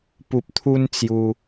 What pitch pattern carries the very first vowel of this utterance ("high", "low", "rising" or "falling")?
low